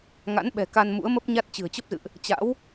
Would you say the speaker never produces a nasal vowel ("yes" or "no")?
yes